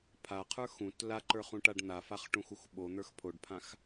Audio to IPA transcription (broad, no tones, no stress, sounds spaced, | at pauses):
pʰ a qʰ ə˞ x ũ t l a ǃ ə˞ χ ũ ʈ a ɖ n̪ a f a χ ʈ ũ x u x ɓ o n̪ ə˞ x pʰ o ɖ pʰ ã x